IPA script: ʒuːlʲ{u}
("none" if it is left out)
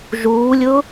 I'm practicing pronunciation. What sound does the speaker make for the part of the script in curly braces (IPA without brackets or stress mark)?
ʊ